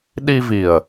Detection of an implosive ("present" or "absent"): present